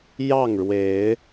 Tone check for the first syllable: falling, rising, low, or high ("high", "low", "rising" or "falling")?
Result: falling